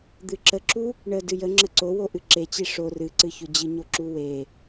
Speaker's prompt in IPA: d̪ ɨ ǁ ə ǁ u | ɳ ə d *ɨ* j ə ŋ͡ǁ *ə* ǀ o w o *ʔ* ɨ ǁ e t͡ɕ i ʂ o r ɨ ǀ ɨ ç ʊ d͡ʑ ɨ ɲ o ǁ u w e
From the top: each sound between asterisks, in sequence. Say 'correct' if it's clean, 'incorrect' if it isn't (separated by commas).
correct, correct, correct